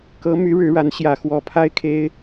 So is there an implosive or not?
no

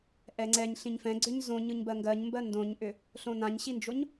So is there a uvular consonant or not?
no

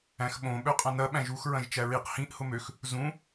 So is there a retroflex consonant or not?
no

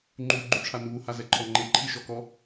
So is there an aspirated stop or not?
yes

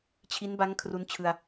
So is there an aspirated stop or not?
yes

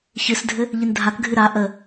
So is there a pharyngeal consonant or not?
no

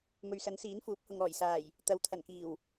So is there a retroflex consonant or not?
no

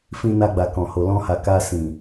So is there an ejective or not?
no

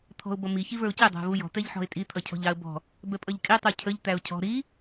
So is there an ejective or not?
yes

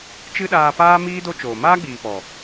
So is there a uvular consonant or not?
no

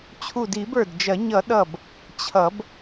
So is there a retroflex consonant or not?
no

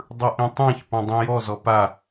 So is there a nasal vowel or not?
yes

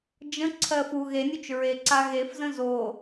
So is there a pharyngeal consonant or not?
no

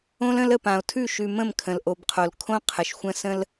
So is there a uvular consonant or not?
yes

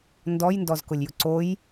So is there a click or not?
yes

